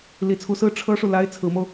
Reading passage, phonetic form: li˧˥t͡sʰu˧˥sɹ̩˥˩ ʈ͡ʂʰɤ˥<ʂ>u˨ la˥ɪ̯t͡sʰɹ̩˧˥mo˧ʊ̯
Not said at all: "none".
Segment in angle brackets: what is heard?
ʂ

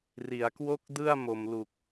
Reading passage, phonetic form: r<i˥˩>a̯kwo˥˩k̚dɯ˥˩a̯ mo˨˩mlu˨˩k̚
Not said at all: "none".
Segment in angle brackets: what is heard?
i˩˦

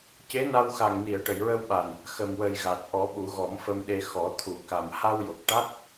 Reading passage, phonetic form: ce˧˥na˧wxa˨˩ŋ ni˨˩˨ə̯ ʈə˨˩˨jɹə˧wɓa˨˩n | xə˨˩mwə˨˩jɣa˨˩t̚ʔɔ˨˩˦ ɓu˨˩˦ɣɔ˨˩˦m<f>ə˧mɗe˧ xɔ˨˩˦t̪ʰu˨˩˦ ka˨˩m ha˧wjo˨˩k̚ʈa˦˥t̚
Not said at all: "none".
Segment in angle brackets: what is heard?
f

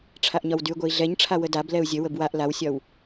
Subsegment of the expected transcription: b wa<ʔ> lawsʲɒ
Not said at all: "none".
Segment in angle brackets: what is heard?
ʔ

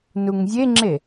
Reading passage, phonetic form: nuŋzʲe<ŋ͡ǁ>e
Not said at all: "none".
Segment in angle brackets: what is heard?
ŋ͡ǁ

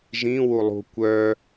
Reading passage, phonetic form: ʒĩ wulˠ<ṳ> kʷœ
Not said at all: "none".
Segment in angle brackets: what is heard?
ṳ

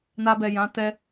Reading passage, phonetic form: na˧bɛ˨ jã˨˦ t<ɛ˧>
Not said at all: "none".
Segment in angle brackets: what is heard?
ɛ˧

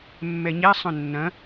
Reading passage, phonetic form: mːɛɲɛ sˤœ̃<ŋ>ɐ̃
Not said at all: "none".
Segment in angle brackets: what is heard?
nː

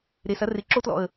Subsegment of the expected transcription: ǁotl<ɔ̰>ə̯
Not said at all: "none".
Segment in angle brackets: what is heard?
ɔ̰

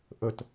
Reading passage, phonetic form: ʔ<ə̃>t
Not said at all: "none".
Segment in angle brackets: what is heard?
ə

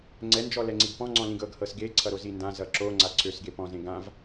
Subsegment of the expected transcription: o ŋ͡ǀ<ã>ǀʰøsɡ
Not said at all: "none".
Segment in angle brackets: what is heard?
a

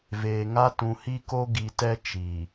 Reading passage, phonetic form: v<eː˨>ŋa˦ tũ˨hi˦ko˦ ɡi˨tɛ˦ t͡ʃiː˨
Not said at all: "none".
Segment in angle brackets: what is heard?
eː˨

